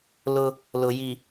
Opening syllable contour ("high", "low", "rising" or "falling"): high